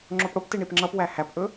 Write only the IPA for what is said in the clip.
ŋ͡ǁ o p ɽ o p t i ɳ i p ŋ͡ǁ ʌ p w æ h æ p ʔ ɵ

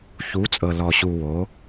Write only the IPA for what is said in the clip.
ç u˩˧ t͡sʼ ɤ˩ l ɔ˩ ɕ u˩ w o˩˧

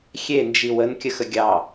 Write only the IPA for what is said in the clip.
xʲ e n d͡ʒ i w ə n kʲ ə x ə ɡʲ ɑ

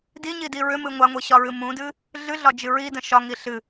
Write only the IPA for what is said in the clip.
d i ɲ i d i ɹ ʏ m ɨ ŋʷ a ŋʷ i ɕ ɒ ɹ ɨ m ũ d ɨ | ɮ ɨ ɮ ɒ d͡ʒ ɨ ɹ i d ə̃ ʃ ɒ ŋ i ɬ ɨ

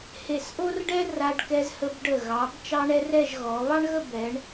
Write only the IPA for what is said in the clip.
h e˧˩ s ʔ o˥ r ɖ ɛ˥ r a˧ ɖ k ɛ˧ z h ə˧ b ɖ ə˧˩ ɣ ɑ˩˧ b t͡ʃ ɑ˥ ɳ ɛ˥ r ɛ˥˧ ʒ ɣ ɔ˩˧ β ɑ˥ ɳ ɣ ə˥˧ b ɛ˩˧ ɳ

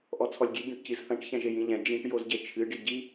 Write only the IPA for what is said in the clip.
ʔ ɔ t͡sʰ ɔ lʲ ɡʲ e ɟ ɐ̃ ʈ c i z θ ɐ̃ ʈ ç ɛ̃ ʒ e j ĩ ʎ ɛ̃ d͡ʒ ĩ ʈ j o z ɟ e t͡ʃʰ ɨ ɖ i ɟ i

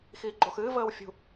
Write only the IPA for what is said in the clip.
x iː ɡ͡ǃ oː x ɨː v əː w fʲ ṳ

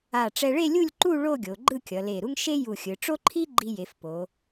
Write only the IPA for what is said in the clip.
a˧˩ ʈ͡ʂ ɛ˧ ɭ e˥˧ lʲ u˥˧ lʲ ǃ u˥˧ ɭ o˥˧ ɡʲ o˩˧ ɡ͡ǃ ɯ˥˧ kʲ ʌ˩˧ l e˧˩ ɾ u˥ ŋ ʃ e˥ j u˧˩ xʲ ɯ˩˧ ʈ͡ʂ o˥ ǃʰ i˥ ɡ͡ǃ i˧ j e˩˧ f p o˩˧

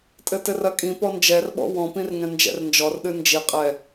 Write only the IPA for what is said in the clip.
tʼ ɘ t ɘ r ɐ kʼ ĩ p ɔ n d͡ʒ ɛ r ɓ ɔ̰ w ɔ̃ p ĩ r ŋ ɛ̃ n d͡ʒ ɛ̰ r n d͡ʒ ɔ r ɗ ɨ n d͡ʒ i qʼ ɛ

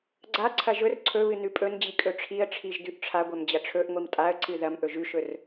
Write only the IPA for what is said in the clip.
ɡ͡ǀ a ǀʰ ɐ ʒ ɵ r ǀʰ ɵ β ɨ n ʉ pʼ ɵ n d͡ʑ i kʼ ɵ ʈ͡ʂʰ i ə̯ ʈ͡ʂʰ i ʒ d ʉ ʔ ʈ͡ʂʰ a ɡʷ ɐ m d͡ʑ ɐ ʈ͡ʂʰ ɵ ʔ ŋʷ i m tʼ a ə̯ ǀ ɨ ð ɐ m ʔ ɵ ʒ ʉ ʃ ɵ r

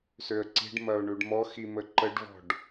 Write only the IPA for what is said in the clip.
s ø ə̯ ǀ i̤ ɖ m ɐ ʊ̯ ɳ ʉ ɖ m ɔ x i m ə ǃ ə ɖ v ɔ̤ ɖ

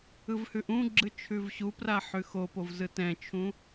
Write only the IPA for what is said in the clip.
ɯ v h ʉ ʔ ũ ɡ͡ǁ ɯ t͡ʃʰ ʉ v ɕ u p r a ħ ʉ x o p o v z ɯ t ɛ̃ t͡ʃʰ ũ

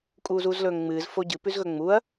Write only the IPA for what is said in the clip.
kʼ uː z uː z l ɵː ŋ ŋ͡m ɨː z f o ɟ ɨ p ʉ z ɣ ɵ ŋ͡m u ɐ̯

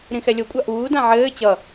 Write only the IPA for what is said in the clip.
ɾ ĩ x ɛ lʲ o kʷʼ a ʔ uː d ã ʕ ɘː t͡ɕ ʌ

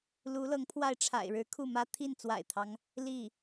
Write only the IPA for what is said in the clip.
l u˧˥ l ɤ˧˥ ŋ pʰ w a˥˩ ɪ̯ ʈ͡ʂʰ a̰˨˩ ɪ̯ ɻ ɻ̩˧˥ kʰ u˥˩ m ä˥ t̪ʰ i˥˩ n t͡s w a̰˨˩ ɪ̯ t̪ʰ ɑ˦ ŋ | l i˥˩

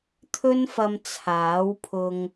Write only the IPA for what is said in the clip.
t̪ʰ ɵ˥ n f ɐ˧ m t͡sʰ aː˨˥ w pʰ ʊ˨ ŋ

